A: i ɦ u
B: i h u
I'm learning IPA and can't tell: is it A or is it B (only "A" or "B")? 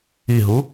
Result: A